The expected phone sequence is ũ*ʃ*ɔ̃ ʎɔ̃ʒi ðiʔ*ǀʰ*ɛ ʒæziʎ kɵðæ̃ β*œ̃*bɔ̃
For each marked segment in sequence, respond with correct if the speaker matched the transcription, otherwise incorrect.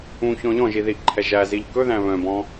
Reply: incorrect: ç, incorrect: ǃʰ, correct

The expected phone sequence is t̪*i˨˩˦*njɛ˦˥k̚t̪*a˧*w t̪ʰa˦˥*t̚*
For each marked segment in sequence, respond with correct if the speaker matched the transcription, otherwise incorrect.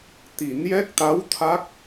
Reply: correct, incorrect: a˧˥, incorrect: k̚

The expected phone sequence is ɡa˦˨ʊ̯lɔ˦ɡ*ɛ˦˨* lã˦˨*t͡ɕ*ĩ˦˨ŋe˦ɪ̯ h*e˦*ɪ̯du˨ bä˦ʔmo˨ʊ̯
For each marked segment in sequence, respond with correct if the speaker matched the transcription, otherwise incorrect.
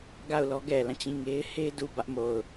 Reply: incorrect: ɛ˨, correct, correct

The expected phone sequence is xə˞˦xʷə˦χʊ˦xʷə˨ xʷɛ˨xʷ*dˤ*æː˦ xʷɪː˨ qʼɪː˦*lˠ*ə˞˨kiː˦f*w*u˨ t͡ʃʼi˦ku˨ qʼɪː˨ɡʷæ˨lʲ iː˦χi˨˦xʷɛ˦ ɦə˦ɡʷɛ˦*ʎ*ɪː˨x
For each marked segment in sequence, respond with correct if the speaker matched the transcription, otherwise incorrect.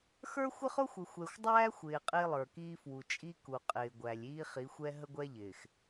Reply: correct, correct, correct, correct

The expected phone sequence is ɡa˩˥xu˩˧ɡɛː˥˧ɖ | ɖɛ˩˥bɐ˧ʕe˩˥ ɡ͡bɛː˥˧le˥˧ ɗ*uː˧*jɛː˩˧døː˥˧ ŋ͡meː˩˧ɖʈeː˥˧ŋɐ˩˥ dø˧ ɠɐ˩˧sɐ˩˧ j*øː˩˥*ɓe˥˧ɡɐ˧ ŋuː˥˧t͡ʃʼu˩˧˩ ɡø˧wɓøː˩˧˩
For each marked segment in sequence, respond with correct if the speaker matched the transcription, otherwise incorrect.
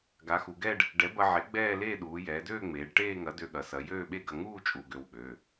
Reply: incorrect: uː˩˧, incorrect: øː˥˧

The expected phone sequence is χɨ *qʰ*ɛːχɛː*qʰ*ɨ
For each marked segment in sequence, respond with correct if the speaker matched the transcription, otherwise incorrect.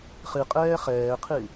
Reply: incorrect: qʼ, correct

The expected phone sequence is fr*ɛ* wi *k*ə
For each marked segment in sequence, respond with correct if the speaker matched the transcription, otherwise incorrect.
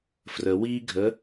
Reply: incorrect: ə, incorrect: ɡʱ

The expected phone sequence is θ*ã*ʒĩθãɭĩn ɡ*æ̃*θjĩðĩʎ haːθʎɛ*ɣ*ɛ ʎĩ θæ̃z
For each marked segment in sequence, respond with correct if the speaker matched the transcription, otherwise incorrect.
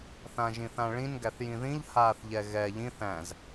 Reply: correct, incorrect: æ, correct

